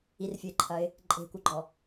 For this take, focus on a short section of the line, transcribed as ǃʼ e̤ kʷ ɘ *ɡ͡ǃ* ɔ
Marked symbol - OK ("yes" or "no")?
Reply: yes